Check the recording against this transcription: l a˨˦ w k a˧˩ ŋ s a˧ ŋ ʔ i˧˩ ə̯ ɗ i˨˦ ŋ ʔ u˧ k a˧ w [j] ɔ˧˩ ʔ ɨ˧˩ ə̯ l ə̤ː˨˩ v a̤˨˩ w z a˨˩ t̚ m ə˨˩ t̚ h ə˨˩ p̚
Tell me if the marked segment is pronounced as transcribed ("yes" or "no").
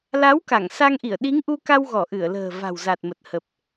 no